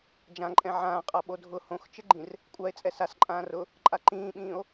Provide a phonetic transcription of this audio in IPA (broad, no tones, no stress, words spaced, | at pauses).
d͡ʒãǃʼɛ̃ ʕãːqʼa ɓodʱʊ hõxt͡ʃɪɡ͡ǃĩr | kʷʼae̯ t͡sʼɛsasǃʼãː rʊ | ǃʼaǃĩːɓĩːo̯